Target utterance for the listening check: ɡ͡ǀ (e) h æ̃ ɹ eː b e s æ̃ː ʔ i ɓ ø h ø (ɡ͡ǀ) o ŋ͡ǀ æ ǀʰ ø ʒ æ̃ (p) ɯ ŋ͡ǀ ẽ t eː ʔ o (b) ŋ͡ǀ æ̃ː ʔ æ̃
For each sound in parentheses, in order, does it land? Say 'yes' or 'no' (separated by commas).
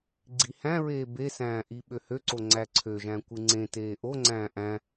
no, no, no, no